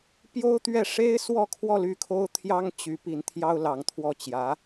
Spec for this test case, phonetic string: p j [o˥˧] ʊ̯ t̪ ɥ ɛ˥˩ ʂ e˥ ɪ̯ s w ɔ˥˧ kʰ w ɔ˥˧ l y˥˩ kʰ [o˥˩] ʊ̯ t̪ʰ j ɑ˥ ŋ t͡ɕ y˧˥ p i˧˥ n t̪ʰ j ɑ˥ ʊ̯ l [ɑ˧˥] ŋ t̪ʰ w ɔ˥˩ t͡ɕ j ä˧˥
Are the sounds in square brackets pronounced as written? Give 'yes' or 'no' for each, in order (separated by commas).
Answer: no, no, yes